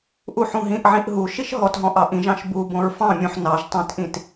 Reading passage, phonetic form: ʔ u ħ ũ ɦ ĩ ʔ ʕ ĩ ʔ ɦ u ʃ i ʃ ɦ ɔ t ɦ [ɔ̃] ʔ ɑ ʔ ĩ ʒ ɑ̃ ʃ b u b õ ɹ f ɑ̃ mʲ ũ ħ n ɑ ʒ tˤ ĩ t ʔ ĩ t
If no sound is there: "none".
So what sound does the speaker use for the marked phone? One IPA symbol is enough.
ɔ̃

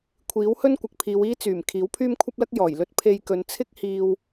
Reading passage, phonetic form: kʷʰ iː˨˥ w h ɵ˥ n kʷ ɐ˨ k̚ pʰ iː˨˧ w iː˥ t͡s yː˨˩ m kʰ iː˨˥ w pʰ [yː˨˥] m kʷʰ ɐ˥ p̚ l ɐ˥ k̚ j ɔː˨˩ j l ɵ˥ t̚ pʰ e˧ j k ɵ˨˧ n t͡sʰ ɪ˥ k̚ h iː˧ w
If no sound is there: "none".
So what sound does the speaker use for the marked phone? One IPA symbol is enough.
yː˥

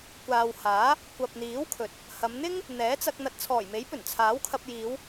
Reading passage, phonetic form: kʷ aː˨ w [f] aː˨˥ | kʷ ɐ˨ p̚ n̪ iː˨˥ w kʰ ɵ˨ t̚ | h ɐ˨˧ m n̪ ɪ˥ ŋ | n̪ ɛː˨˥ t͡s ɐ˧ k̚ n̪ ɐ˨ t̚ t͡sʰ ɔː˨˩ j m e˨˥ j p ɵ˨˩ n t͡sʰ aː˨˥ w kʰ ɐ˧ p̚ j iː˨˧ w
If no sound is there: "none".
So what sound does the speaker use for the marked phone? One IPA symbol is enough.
h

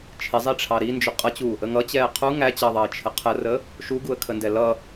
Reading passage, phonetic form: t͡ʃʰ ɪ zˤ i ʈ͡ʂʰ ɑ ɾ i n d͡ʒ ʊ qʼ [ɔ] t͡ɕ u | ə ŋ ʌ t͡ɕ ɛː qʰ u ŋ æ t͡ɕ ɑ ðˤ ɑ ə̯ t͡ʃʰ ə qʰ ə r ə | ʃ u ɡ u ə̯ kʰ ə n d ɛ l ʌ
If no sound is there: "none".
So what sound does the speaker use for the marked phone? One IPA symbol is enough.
ʌ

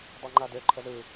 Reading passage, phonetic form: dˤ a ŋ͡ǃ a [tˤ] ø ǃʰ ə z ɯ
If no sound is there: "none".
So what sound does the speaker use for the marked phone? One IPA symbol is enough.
d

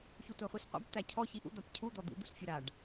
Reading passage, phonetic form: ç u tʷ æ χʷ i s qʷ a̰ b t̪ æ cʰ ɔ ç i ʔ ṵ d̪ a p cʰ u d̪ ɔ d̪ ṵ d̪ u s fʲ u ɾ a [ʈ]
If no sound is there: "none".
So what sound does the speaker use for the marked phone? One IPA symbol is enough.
ɖ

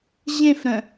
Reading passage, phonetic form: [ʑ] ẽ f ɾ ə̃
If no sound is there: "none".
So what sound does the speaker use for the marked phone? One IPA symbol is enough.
ʑ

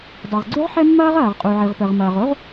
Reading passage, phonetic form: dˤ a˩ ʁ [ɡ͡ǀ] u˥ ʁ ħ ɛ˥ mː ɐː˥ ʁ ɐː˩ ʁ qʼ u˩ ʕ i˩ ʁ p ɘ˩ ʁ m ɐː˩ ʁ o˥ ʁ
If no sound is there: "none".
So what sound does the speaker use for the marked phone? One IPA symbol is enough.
ɡ͡ǀ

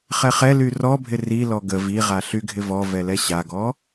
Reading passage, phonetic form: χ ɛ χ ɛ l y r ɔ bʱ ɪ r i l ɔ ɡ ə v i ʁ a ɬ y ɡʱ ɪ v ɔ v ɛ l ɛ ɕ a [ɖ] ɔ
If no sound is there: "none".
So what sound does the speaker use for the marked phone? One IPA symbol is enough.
ɡ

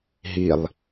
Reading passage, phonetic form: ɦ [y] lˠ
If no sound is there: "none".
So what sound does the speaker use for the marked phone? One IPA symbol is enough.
i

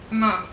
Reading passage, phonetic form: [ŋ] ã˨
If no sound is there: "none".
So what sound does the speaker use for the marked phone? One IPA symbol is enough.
m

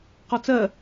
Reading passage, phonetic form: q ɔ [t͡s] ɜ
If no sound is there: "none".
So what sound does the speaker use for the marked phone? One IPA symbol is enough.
t͡s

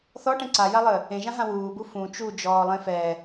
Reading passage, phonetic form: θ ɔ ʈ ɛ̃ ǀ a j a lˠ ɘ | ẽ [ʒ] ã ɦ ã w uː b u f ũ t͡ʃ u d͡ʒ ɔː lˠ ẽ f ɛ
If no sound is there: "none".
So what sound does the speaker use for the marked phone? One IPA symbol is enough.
ʒ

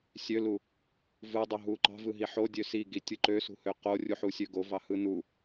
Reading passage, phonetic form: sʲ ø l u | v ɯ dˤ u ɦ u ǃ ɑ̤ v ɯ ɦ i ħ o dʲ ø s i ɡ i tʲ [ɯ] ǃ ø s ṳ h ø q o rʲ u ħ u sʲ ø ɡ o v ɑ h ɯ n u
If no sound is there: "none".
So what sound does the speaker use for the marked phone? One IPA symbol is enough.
ɯ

